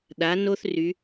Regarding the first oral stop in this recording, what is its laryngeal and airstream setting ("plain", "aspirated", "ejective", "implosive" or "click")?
implosive